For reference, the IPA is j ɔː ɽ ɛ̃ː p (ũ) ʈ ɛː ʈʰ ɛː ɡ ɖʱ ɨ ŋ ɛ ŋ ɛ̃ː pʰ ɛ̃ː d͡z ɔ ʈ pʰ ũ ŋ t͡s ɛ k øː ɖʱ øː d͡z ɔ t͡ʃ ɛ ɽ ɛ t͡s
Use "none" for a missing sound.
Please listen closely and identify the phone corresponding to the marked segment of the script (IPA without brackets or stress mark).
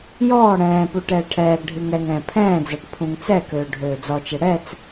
u